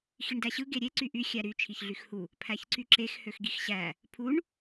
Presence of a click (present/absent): present